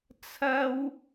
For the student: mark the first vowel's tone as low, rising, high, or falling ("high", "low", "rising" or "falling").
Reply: high